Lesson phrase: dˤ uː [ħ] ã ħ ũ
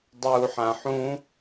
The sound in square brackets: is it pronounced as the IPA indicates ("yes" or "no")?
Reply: yes